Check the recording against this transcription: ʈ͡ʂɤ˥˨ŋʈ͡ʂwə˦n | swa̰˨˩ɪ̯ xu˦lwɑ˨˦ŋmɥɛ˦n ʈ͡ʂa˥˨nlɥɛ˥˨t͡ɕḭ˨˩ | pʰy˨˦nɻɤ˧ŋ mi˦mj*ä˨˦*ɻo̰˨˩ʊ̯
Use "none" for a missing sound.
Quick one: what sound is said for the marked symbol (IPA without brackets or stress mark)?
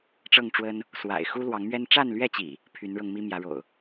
ä˨˦